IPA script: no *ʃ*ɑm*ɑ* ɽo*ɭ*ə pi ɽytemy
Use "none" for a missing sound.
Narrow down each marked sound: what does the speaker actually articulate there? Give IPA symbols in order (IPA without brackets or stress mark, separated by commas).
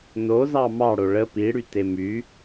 z, ɑ, ɭ